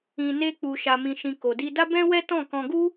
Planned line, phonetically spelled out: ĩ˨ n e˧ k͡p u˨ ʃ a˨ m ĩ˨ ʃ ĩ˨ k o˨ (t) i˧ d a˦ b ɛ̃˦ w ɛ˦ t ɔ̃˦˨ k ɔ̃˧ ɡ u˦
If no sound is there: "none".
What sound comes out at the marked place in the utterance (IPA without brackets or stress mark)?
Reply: d